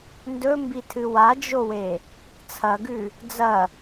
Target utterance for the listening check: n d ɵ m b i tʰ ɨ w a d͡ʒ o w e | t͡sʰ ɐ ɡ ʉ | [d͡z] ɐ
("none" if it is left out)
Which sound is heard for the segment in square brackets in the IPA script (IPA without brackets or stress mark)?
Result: d͡z